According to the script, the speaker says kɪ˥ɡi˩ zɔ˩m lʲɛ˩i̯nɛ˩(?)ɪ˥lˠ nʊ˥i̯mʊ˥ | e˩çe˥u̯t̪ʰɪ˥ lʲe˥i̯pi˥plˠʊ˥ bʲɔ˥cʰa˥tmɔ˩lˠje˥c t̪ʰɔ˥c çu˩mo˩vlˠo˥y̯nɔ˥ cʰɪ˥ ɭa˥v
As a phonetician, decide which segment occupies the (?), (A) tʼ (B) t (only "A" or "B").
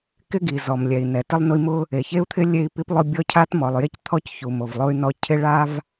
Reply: B